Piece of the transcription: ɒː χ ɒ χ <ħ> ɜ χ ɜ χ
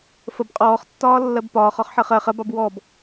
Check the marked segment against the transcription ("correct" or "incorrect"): correct